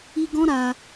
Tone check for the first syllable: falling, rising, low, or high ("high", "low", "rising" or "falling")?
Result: high